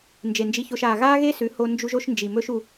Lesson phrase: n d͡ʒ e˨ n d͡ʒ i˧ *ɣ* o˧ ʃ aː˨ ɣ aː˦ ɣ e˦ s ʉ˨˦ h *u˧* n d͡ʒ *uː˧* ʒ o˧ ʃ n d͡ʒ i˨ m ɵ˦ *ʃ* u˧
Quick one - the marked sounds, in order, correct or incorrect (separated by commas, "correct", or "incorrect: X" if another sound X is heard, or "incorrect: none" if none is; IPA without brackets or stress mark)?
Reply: incorrect: ç, incorrect: o˧, incorrect: u˧, correct